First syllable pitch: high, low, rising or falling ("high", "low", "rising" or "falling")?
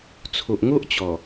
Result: low